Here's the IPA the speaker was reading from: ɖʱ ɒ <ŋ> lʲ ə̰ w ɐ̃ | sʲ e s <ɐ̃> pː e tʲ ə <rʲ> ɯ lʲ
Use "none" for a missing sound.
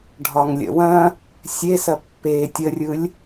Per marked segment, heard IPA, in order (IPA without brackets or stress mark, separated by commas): ŋ, ɐ, rʲ